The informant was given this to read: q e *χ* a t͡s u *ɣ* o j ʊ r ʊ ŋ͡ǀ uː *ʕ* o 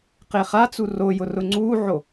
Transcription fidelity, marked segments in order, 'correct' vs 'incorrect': correct, incorrect, correct

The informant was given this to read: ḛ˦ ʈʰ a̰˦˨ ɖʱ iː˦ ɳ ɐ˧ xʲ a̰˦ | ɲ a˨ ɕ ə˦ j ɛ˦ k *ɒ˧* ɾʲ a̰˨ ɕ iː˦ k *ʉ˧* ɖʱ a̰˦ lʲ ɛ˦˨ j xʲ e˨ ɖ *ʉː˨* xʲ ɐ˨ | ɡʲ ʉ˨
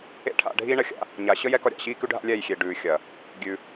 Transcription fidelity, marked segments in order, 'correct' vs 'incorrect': correct, incorrect, correct

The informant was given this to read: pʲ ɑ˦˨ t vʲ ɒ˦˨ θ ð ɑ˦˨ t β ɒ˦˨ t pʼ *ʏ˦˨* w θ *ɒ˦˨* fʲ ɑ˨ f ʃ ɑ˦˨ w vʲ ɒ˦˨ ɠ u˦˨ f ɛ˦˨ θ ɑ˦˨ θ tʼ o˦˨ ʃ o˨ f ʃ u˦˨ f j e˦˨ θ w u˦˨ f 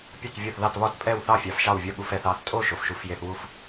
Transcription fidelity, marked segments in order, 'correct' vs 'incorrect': incorrect, incorrect

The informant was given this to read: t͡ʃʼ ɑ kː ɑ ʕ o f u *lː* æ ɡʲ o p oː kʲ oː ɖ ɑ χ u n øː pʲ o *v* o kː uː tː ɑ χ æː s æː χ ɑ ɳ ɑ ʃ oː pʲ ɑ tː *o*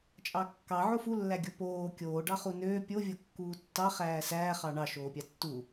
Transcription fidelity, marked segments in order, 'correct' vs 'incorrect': correct, incorrect, incorrect

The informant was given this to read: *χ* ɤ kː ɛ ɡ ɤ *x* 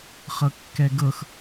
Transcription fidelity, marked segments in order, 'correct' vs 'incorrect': correct, correct

